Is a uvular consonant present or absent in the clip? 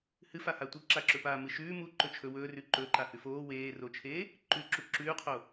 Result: present